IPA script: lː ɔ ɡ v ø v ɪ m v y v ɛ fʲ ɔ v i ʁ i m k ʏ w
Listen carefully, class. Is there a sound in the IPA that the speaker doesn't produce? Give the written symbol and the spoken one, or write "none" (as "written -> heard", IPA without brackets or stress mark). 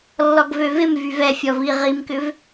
w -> v